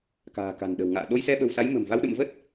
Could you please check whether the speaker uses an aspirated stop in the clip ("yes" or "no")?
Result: no